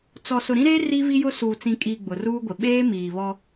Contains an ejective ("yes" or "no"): yes